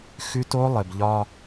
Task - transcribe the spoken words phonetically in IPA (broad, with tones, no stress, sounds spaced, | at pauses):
x ʉ˦ t o˦ lˠ ɘ˨ b ʎ ɒ˦